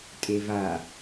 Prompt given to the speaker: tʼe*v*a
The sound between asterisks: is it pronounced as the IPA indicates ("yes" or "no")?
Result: yes